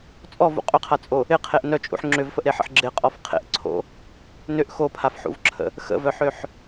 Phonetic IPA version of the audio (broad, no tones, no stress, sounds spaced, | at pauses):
t͡sʼ ɔ v ṵ qʼ ʏ qʰ a t͡sʼ o | ɪ qʰ e ʔ n œ t͡ʃʼ ṵ ħ ŋ͡ǁ ʏ v f ə ʔ ɾ e ħ ə̰ ħ ɡ͡ǁ ɪ qʼ ɔ f qʰ ḛ ʔ ǀʰ o̰ | n ʏ ʔ x o pʰ a f ħ ṵ v ǁʰ ə̰ | x ə̰ v œ ħ ø ħ